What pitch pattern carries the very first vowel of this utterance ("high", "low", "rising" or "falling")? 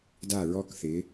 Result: falling